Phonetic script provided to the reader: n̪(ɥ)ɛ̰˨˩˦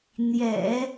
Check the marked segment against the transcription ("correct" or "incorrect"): incorrect